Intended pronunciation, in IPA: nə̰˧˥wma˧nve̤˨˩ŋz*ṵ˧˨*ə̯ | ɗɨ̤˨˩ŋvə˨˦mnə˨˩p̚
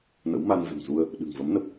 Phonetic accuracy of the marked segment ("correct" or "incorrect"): incorrect